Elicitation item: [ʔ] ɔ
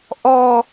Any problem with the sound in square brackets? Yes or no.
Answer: no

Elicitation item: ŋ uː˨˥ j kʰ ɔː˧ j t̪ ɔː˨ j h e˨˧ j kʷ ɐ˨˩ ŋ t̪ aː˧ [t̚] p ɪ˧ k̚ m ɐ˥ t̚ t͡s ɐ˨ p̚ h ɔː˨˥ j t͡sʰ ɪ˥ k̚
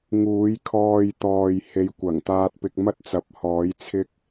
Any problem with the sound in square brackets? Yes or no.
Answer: no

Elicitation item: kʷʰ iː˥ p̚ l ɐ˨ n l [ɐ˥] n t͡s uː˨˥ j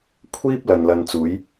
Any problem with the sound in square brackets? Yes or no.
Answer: yes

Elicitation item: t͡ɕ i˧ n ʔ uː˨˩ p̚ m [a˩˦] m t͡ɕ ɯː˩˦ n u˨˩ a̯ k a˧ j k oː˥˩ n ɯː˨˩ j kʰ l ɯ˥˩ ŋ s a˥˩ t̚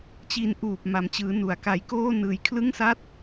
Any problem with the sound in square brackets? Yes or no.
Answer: no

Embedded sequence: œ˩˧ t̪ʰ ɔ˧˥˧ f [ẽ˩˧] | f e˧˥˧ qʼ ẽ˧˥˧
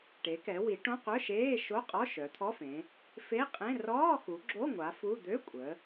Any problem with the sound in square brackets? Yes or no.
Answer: no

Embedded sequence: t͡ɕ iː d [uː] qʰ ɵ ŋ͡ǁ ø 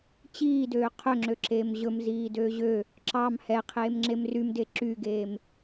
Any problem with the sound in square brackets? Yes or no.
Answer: yes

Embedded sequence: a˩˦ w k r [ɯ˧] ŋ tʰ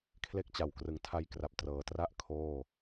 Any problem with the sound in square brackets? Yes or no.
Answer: yes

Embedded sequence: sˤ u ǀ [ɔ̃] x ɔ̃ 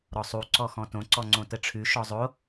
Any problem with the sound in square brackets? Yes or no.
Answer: yes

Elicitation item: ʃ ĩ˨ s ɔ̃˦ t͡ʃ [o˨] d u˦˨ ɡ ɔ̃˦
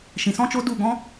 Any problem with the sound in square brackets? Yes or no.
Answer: yes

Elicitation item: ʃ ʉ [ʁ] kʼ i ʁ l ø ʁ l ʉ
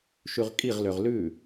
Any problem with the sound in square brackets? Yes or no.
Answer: no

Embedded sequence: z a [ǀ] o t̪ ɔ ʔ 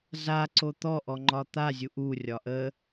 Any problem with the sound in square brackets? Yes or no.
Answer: no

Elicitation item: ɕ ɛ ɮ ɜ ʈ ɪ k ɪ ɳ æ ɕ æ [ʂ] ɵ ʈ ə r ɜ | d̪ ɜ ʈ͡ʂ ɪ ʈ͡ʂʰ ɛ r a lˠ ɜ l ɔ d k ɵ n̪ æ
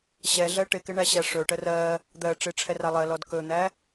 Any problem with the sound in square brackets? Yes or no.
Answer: no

